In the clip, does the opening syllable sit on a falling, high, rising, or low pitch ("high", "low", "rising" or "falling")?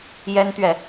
high